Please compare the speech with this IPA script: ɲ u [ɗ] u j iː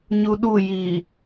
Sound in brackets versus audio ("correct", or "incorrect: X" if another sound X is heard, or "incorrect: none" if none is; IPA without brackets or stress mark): correct